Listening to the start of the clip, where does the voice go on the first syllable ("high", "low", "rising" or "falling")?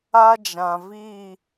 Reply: high